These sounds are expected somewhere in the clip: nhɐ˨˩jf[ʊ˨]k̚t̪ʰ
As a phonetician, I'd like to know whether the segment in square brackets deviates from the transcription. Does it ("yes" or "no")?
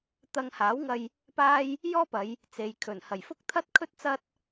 yes